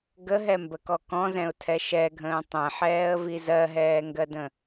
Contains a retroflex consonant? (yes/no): no